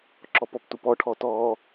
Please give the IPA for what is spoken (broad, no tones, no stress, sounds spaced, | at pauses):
ǁ ɔ p ɔ p t u p ɔ ʈʰ ɔ t ɔː